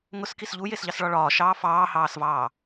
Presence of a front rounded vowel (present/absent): absent